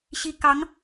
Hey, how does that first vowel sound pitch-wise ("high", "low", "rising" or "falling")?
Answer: rising